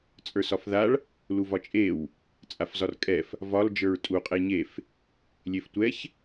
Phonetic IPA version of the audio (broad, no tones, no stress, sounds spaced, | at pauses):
t͡sʼ ə˞ s ɒ f ð a ɭ | l u v ɒ t͡ʃʼ e w | t͡sʼ a f z ɒ r kʼ ɛ f | v ɒ l d͡ʒ ə˞ ɹ tʼ u qʼ e ɲ e f | lʲ e f tʷ ɛ ç